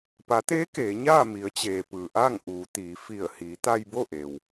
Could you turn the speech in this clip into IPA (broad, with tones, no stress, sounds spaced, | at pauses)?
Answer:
p a˩˧ t̪ eː˧˥ k eː˩˧ ɲ aː˥˨ m i˩˧ ə̯ t͡ɕ eː˩ p ɯː˩ ʔ aː˥˨ ŋ ʔ uː˩˧ t̪ iː˩˧ f i˧˩ ə̯ h iː˩˧ t̪ a˧ j b o˥˨ ʔ e˩ w